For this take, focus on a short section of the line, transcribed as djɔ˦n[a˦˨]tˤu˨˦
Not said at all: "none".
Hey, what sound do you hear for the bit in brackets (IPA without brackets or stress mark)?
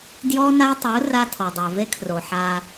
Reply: a˦